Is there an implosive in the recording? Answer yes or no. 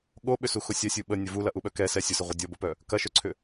yes